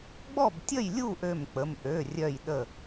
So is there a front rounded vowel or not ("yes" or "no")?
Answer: yes